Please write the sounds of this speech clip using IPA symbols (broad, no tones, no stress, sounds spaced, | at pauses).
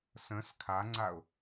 s ə̃ s kʰ a ŋ͡ǀ a ʊ̯